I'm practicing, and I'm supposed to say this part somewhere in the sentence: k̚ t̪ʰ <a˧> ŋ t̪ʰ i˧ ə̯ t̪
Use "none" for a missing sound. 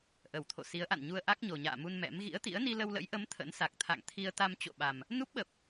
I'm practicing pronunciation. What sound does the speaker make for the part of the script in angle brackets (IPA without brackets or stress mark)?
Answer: a̰˧˨